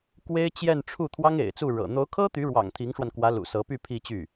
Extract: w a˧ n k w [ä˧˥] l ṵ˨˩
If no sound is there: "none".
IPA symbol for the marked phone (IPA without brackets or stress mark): ä˧˥